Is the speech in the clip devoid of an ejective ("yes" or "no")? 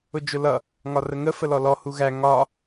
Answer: yes